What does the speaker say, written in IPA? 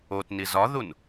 o t n i z ɒ ð u n

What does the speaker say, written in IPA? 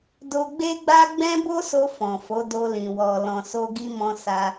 d o˧ ɡ͡b e˦ ɡ͡b a˦ ɡ͡b ɛ̃˦ b o˦ s o˧ f ɔ̃˨ f o˨˦ d o˧ l ĩ˨ w ɔ˨ l ɔ̃˨ s o˧ ɡ i˧ m ɔ̃˧ s a˧

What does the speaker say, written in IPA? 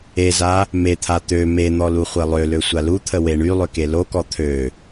e z a | m e t̪ʰ a t̪ ø m e n̪ ɔ l u χʷ e lˠ ø l ø sʷ a l u t̪ʰ ə w e ɳ y lˠ ø k e l o k ɔ t̪ʰ ø

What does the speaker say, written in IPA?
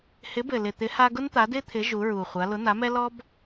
h ɪ˨˥ b ɘ˨˩ l ɪ˨˩ t̪ ɪ˨˥ h a˥ ɡ ʊ˥ n t̪ a˨˥ d ɪ˥ t̪ʰ ɪ˨˥ ʒ u˨˥ ɹ u˨˩ χʷ a˨˥ l ʊ˨˥ n̪ a˨˥ m ɛ˥ l ɔ˥ b

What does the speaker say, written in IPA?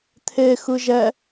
t̪ʰ e x ɯ ʒ ɛ

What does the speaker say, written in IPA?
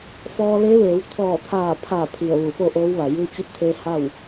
f ɔː˧ l e˧˥ ʋ eː˩˧ w t̪ʰ ɔː˧˩ t̪ʰ aː˧˩ pʰ a˧˩ pʰ i˧˩ ə̯ ʋ u˧˩ f o˥˨ ʔ oː˧˥ w ʋ a˩ j ɯː˧ t͡ɕ i˧˥ p̚ t̪ʰ e˧ h a˥˨ w

